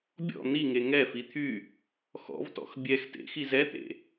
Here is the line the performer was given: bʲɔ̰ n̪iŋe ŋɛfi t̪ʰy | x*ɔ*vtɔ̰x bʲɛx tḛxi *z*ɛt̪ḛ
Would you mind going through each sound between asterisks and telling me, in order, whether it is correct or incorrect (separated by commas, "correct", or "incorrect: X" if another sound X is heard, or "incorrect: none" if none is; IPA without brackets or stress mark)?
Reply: incorrect: ɔ̰, correct